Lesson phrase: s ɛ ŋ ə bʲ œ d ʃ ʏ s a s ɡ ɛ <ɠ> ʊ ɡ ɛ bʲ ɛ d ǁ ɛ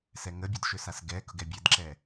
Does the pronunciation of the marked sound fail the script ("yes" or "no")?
yes